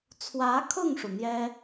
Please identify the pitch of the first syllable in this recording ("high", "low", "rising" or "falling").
rising